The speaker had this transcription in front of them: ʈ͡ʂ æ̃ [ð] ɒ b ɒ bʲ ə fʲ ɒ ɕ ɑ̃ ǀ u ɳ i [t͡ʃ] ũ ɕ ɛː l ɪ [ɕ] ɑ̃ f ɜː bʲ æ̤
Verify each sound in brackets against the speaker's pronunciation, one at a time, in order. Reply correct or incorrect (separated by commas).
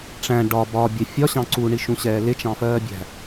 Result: incorrect, incorrect, incorrect